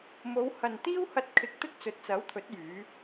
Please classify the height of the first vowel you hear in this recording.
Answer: mid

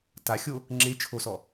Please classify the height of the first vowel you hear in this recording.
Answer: low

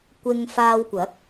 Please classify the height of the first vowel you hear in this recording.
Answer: high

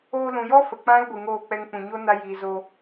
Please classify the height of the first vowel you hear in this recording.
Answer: mid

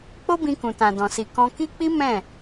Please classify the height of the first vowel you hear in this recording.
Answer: mid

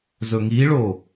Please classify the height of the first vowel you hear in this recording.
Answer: mid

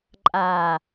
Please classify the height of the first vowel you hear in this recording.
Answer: low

